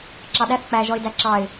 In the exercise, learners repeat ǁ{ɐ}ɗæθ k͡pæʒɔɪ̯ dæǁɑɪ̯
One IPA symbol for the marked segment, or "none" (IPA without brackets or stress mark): ɑ